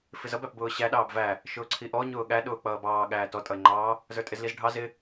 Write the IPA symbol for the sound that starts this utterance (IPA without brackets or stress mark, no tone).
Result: f